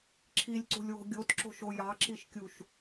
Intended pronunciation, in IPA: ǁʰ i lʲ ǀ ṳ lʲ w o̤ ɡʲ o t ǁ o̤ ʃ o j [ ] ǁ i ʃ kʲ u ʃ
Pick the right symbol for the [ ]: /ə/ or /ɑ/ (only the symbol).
ɑ